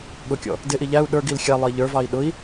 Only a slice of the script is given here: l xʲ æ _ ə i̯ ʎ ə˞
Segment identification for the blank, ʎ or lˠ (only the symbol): lˠ